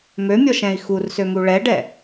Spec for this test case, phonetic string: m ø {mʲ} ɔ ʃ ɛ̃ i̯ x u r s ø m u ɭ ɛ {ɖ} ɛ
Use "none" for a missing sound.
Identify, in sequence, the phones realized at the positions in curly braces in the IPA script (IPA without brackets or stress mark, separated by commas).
mʲ, ɖ